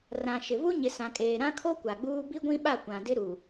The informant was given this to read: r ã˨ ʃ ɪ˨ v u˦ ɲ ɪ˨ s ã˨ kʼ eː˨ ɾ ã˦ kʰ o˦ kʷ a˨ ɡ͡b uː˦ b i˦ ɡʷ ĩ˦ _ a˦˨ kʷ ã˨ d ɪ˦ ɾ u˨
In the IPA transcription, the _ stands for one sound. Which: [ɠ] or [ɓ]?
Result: ɓ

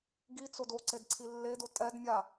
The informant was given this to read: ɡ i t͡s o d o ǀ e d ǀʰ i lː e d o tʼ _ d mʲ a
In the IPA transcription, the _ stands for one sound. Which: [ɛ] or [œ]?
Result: ɛ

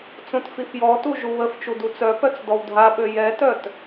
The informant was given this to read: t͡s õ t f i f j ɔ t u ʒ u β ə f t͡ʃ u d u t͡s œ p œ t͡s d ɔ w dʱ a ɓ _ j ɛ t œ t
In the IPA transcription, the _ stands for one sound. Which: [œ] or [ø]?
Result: ø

